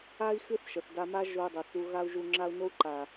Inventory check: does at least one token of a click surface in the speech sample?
yes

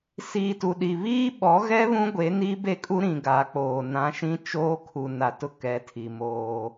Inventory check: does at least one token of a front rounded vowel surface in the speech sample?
no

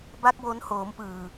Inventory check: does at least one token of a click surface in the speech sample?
no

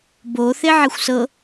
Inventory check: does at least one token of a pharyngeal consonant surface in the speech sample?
yes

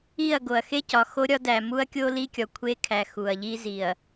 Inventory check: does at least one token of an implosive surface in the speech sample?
no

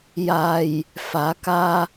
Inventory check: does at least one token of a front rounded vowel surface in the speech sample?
no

